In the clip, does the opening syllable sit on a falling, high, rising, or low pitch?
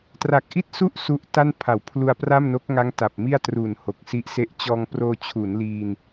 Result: low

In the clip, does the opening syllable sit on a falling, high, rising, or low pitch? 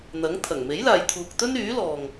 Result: rising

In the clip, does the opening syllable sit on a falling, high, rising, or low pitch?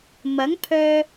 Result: rising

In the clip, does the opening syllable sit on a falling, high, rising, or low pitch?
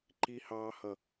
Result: high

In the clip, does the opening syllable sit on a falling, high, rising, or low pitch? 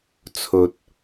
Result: low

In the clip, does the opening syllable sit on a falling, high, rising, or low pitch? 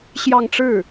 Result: falling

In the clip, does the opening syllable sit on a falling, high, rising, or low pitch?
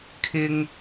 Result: high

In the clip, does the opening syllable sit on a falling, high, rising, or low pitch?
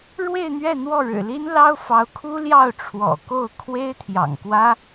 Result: falling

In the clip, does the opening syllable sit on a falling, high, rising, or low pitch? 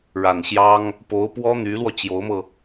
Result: low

